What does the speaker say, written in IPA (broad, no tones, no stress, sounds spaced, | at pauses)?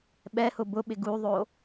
ɓ ɛ h ʊ b ʊ ɓ ɪ ɡ u ðˤ o